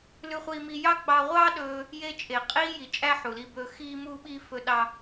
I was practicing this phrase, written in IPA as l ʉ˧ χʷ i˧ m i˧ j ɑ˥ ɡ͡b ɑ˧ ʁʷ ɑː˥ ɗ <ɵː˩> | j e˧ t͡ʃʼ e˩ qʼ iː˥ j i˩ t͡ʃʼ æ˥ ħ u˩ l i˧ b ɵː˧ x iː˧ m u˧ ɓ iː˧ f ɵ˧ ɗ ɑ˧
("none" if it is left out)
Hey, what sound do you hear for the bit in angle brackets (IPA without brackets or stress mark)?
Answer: ɵː˧